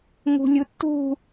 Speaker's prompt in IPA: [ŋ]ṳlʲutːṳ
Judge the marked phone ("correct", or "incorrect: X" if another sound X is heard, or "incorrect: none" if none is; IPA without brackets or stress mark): correct